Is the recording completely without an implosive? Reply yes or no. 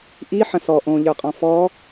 yes